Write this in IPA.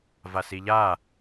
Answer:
v a s i ʎ a

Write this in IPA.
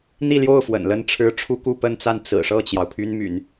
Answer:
n̪ i˥˧ l j o˥˩ ʊ̯ f w ə̰˨˩ n l ə˥˩ n ʈ͡ʂʰ ɻ̩˥ ʈ͡ʂʰ u˥ k u˥˧ p ə˥˧ n t͡s a˥˩ n t͡s ɹ̩˨˩ ʂ ɤ˥˩ t͡ɕ j ɑ˩ ʊ̯ pʰ y˥ n m y̰˨˩˦ n

